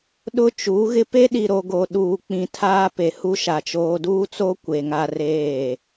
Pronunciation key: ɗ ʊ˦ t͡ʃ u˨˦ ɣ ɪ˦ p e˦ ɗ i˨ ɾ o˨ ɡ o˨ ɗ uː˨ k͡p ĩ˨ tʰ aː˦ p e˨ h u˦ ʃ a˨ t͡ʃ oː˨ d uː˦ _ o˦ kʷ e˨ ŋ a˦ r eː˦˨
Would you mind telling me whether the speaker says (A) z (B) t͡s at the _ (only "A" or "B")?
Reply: B